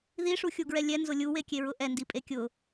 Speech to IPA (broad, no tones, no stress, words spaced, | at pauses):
ðiʂuxʲuɡɹɛ lʲɛnzʊ lʲuwekʲeɹʊ ʔɛndipʼe kʲʊ